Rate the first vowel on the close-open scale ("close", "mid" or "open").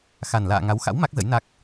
open